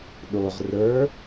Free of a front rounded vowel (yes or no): yes